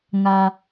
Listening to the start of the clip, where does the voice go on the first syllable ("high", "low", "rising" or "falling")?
low